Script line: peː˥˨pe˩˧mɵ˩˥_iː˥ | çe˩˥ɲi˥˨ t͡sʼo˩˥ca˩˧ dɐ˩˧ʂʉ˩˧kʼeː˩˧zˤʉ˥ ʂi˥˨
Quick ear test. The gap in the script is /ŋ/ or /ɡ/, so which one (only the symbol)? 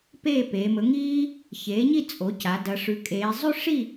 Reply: ŋ